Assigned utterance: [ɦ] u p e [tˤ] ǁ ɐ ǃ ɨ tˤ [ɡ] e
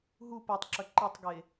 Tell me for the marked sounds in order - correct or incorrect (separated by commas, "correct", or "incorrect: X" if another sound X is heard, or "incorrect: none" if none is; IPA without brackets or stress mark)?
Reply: correct, correct, correct